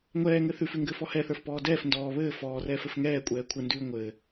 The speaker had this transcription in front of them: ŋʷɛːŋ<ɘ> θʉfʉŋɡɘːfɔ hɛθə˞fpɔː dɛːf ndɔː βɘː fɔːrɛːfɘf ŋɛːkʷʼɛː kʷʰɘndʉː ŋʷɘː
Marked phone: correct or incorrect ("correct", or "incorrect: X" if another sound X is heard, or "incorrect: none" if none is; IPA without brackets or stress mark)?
correct